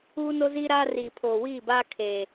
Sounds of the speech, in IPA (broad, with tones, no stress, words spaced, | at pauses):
uː˦no˦ziː˦ɾaː˦ riː˨pʰoː˨wiː˦˨baː˦ kʰeː˨